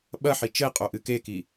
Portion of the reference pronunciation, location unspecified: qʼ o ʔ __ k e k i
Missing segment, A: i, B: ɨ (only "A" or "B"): B